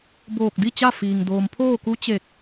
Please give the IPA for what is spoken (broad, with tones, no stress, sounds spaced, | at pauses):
b oː˧˩ k̚ d i˥˨ t͡ɕ a˥˨ f iː˩ ŋ d oː˩ m pʰ oː˥˨ k u˧˥ t͡ɕ e˧˩ k̚